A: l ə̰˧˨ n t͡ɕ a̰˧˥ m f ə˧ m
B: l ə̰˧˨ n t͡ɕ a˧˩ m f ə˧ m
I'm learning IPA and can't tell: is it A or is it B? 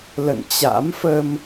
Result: A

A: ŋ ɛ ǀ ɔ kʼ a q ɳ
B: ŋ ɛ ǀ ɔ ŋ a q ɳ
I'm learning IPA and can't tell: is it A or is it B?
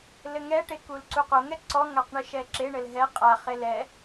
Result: B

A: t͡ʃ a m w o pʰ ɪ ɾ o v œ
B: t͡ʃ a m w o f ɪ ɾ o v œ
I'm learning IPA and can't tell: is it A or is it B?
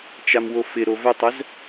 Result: B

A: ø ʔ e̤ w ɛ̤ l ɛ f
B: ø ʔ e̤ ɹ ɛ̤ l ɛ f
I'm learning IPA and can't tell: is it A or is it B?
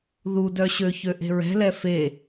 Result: B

